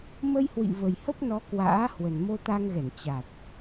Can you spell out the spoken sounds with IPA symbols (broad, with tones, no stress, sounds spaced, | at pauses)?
m ə˧ j h w ḭ˧˨ v ə˨˩ j h ə˦˥ p̚ n ɔ˨˦ k w a̰ː˧˥ h w ə˨˩ n m o˧ t̪ a˧ ŋ ɣ ɛ˧˩ n t͡ɕ a˨˩ t̚